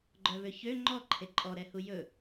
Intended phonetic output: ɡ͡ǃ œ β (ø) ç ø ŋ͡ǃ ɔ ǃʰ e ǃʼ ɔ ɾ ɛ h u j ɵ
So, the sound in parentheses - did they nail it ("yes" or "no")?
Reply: yes